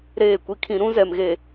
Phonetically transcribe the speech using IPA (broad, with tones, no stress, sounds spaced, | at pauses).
ɾ eː˦˨ kʷ i˦ kʰ ĩ˦ ɾ ũ˦ z ɛ˨ m ɣ e˨